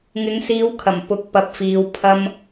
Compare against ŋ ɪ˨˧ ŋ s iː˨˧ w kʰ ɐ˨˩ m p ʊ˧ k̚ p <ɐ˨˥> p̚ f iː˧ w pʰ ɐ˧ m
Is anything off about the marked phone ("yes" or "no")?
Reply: yes